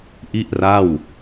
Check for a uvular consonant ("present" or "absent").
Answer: absent